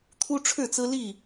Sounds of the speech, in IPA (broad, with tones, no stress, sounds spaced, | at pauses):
t̪ʰ u˦ ʈ͡ʂʰ ɻ̩˥˨ t͡s ɹ̩˦ l i˥˨